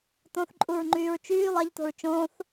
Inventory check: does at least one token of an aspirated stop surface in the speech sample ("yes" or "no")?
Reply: no